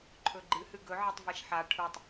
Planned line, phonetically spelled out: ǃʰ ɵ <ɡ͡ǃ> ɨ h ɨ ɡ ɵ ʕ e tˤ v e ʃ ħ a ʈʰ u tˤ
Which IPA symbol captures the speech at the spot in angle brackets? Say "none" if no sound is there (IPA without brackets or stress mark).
ɡ͡ǃ